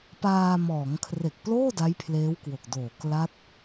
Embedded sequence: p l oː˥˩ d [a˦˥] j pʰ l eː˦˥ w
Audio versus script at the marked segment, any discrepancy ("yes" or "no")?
no